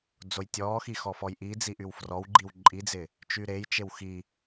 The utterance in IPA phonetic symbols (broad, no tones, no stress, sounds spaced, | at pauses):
d͡z o j tʲ ɔː x i x ɔ f ɔ j ʔ i d͡z i ʔ y w f r ɔ w ɡ͡ǃ i w ǃʼ i d͡z ɪː | t͡ʃ y ɾ e j t͡ʃ e w x i